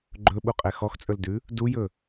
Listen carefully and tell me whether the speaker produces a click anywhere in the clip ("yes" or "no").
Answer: yes